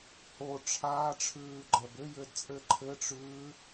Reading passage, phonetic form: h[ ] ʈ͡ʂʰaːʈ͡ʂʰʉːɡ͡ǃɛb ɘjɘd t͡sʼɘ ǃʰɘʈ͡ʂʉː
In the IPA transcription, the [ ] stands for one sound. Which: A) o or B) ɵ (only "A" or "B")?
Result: A